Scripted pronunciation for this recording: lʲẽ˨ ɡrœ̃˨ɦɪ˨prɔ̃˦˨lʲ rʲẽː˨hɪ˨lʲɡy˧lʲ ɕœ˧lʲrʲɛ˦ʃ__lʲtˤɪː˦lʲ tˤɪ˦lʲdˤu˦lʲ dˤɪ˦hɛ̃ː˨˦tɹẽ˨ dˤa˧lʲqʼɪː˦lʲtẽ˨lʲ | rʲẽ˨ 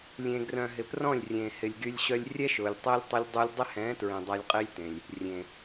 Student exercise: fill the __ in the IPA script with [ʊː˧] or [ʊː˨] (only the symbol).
ʊː˨